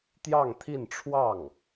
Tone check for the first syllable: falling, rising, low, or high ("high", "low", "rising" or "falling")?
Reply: falling